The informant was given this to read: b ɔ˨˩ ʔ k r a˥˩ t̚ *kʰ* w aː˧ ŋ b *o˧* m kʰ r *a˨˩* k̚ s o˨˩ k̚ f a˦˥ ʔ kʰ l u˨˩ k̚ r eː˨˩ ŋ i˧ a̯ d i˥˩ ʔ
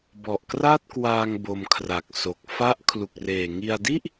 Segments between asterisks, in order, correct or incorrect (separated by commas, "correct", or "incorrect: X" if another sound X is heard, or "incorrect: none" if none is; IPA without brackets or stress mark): incorrect: k, correct, correct